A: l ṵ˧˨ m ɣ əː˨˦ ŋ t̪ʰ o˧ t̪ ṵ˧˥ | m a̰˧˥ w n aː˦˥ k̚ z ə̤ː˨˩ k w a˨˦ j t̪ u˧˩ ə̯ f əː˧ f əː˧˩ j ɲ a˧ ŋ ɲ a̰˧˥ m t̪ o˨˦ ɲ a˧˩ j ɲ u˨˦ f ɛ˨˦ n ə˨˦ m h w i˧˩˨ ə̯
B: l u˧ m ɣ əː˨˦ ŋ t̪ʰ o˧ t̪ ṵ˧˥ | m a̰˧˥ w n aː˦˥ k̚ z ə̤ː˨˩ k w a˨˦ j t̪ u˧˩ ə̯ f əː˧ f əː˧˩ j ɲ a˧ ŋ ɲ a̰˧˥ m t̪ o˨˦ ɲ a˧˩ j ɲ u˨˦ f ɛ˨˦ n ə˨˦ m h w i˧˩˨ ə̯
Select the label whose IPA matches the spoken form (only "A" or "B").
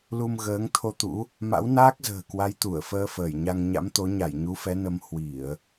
B